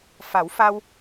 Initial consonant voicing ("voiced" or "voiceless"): voiceless